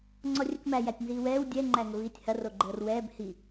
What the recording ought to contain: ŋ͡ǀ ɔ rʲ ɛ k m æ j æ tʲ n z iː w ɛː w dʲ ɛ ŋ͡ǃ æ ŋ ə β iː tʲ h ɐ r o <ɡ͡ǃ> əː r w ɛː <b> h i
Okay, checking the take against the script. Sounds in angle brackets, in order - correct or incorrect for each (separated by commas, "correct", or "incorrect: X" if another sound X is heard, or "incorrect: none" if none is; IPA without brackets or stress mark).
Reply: correct, correct